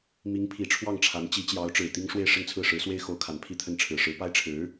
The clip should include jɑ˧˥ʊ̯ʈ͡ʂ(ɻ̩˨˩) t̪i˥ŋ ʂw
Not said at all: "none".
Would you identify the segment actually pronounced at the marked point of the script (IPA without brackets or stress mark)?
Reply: ɻ̩˨˩